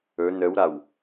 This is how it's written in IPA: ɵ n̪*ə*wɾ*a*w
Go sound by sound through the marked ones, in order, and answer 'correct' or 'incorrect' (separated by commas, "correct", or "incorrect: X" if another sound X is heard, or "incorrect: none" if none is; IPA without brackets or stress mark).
correct, correct